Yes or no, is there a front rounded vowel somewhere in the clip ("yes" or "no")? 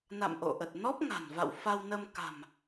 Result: no